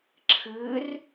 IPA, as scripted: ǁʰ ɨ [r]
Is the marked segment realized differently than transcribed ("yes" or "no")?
no